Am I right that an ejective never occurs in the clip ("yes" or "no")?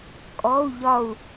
no